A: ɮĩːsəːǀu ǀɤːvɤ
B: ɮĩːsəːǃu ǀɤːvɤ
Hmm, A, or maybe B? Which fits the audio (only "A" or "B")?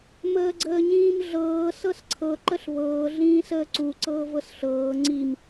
A